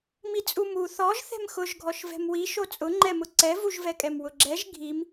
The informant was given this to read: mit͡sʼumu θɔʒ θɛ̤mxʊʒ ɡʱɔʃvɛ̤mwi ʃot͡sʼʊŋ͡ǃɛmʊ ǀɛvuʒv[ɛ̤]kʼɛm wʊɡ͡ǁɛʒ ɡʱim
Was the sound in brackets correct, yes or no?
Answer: no